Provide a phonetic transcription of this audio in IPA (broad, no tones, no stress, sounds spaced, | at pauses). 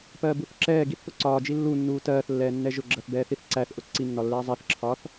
p ɜː b u θ ǁ ɛː ɡ i θ p ʊ ǀ ɒː d͡ʒ i lː u nː uː t ɜː θ lː ɛː nː ɛ ʒ ʊ ɡ͡ǁ ɜ θ b ɛː θ i θ ǀ æ θ ʔ ʊ ǀ i nː ɒ lː ɛː zˤ ɛ θ ǁʰ ɒː θ